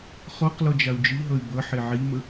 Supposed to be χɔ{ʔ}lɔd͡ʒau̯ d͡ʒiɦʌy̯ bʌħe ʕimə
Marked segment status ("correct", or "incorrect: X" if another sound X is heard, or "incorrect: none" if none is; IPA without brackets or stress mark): incorrect: q